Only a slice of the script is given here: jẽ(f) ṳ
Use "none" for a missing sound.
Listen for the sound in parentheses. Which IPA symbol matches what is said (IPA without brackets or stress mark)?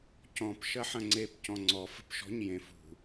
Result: f